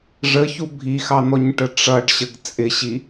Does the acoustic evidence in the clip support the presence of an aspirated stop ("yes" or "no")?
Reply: no